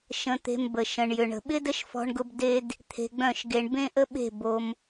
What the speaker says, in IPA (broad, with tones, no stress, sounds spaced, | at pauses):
ʃ ə̃˧ t̪ e̤˧ m b ə˨ ʃ ə̃˨ ɳ j ʏ˨ ɳ ə̤˨ ɓ ɪ˦ d ə˦ ʃ f ɔ̤˧ ɳ ɡ ʊ˧ b d e˧ d | t̪ʰ e̤˧ ɡ͡b œ̃˦˨ ʃ ɡ e˧ ɳ b ẽ˦ ʔ ə˦ ɓ e̤˦˨ b o˧ m